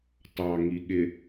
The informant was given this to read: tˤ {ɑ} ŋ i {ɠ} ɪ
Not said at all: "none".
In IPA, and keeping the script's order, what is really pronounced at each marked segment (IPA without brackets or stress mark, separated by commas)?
ɑ, ɠ